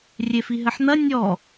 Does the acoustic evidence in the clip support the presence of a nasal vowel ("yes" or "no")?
no